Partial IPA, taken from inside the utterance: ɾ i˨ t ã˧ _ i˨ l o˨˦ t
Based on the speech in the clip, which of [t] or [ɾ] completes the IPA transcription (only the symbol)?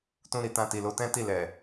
t